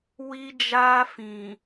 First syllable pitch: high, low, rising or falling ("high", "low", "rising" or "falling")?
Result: high